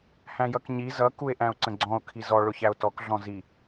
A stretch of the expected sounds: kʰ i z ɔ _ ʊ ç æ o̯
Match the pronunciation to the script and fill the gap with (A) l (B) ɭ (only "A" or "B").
B